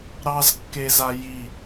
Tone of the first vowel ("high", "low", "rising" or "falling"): high